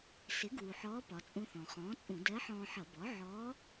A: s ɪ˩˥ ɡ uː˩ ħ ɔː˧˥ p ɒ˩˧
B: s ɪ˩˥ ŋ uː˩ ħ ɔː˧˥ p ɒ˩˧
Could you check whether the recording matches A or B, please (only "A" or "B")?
A